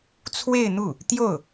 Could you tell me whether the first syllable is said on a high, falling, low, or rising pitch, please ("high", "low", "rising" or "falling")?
falling